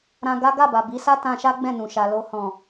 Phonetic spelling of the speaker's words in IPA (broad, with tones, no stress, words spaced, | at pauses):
ɾã˧ɡa˦ ɡa˦˨ba˨ bi˨˦sa˦ tã˧ʃa˦ ɡ͡bɛ̃˦˨nũ˨ʃa˨ lo˧hɔ̃˨